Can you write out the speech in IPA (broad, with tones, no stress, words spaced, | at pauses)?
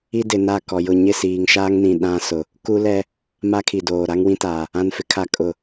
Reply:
i˦dɪ˨na˦˨ kɔ˨jʊ˦˨ ɲɪ˦˨siː˨ŋʃaː˦ŋnĩ˨ ɗã˦ sʊ˨ | ku˦lɛ˦ | ma˦kʰi˨doː˨ ɾa˦ŋwĩ˦taː˨ | ã˨nfɪ˨kʰa˨ kʼʊ˨